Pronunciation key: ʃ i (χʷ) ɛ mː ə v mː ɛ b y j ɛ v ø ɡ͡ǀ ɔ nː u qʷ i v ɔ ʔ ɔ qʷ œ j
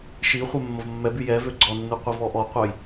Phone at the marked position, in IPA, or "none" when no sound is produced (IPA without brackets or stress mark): χʷ